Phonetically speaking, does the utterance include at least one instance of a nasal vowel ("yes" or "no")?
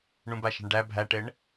yes